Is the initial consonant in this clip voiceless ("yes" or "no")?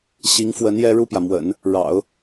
yes